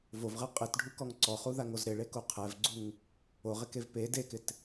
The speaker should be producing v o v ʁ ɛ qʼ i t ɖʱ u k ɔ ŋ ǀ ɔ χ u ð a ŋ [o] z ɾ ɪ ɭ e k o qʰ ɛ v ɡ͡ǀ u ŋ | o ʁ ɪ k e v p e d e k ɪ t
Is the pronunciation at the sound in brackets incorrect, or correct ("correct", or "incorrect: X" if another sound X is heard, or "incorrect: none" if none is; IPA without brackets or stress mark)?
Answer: correct